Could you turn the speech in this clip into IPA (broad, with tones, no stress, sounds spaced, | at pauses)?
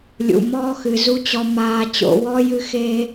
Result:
lʲ ṵ˨ m ɔː˦ x ɨ˨ z u˧ t͡ɕ ɔ˨ m aː˨ t͡ɕ o̰˨ w ɔ˦ j ɨ˧ x e˧